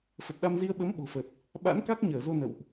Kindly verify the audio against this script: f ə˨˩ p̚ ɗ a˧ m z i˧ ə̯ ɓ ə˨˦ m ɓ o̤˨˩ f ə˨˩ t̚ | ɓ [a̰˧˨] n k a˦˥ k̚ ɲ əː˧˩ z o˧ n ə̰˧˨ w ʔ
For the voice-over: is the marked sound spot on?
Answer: no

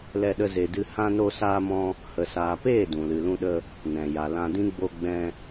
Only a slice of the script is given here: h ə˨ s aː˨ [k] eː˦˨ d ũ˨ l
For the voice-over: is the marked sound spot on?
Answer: no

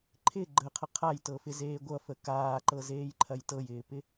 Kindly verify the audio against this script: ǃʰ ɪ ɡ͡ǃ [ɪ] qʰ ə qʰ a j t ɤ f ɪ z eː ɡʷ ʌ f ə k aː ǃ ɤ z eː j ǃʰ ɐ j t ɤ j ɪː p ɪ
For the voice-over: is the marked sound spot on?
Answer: no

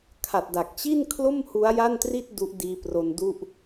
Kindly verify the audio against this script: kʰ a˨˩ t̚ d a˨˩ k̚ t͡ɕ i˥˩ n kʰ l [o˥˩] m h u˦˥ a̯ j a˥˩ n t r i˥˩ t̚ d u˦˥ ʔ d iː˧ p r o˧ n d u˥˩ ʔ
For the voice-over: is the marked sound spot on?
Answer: yes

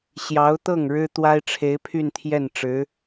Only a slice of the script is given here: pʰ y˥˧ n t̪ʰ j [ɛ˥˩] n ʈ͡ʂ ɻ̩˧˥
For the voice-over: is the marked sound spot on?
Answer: yes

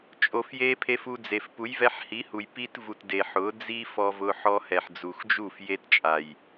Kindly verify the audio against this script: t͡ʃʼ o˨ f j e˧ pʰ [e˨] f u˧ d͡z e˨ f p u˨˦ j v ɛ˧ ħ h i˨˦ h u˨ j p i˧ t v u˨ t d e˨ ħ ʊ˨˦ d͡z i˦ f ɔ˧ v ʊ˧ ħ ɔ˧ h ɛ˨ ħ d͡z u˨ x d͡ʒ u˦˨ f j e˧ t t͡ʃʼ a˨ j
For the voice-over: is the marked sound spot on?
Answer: no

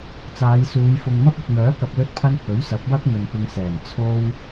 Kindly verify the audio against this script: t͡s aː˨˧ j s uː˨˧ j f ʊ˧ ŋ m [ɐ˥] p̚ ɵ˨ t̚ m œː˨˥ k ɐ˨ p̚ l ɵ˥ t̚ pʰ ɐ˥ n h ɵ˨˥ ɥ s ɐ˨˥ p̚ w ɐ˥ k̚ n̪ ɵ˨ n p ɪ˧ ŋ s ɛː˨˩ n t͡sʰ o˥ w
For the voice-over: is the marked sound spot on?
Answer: yes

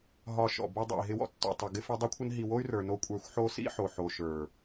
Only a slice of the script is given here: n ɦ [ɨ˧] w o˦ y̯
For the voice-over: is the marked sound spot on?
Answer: no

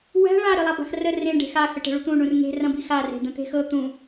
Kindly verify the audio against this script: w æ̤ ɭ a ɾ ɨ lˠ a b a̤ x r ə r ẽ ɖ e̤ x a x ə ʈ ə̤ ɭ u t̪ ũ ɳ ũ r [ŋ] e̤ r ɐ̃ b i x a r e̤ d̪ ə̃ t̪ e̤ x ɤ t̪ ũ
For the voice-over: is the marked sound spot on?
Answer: yes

